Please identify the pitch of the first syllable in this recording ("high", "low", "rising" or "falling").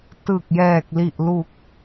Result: low